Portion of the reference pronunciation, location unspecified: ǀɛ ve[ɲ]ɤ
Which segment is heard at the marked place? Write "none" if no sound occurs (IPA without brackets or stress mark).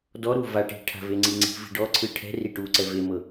m